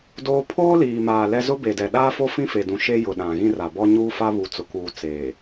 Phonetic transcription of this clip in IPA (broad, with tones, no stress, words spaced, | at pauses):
doː˦ pʰoː˦ liː˨maː˨ lɛ˦ zʊ˦ be˨dɛ˨ ɗaː˦fo˦ fĩ˦fe˨dũ˨ ʃe˦jʊ˨ ɗã˨ɣĩ˦ ra˨bɔ˦ ɲuː˦fa˦ βu˨ t͡sʊ˨ kuː˨ t͡seː˨